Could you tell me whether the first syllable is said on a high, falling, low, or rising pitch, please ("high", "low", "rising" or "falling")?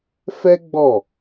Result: high